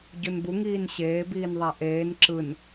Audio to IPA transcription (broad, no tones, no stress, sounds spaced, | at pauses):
ɟ u n b u ŋ iː n ɕ eː b iː n ðˤ a ʔ eː n ǁ ɯ n